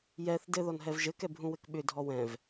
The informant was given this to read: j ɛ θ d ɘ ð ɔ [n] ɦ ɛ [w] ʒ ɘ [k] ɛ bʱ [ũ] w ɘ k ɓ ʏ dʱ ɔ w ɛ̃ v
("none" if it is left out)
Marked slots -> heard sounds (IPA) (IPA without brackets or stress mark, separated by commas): n, v, k, ũ